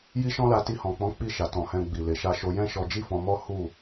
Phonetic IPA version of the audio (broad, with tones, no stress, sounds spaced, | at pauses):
j i˦ ʃ ɔ̃˦ l a˧ t i˧ h ɔ̃˨ k͡p ɔ̃˨˦ k͡p i˦˨ ʃ a˨ t ɔ̃˨ h ɛ̃˧ ɡ͡b i˨ l e˨ ʃ a˧ ʃ o˧ j ɛ̃˦ ʃ ɔ˧ d͡ʒ i˦ f ɔ̃˧ m ɔ˦ h u˦˨